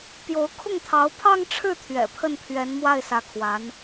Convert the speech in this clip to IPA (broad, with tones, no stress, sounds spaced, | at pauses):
p j o˧˥ ʊ̯ kʰ ʊ˥˩ ŋ t̪ʰ ɑ˧˥ ʊ̯ pʰ ɑ˥˧ ŋ ʈ͡ʂʰ ɻ̩˥˩ t̪ʰ ɥ ɛ̰˨˩ pʰ ə˥˩ n pʰ ɥ ɛ˧˥ n m w a˥˩ ɪ̯ s ä˧˥ kʰ w a˧˥ n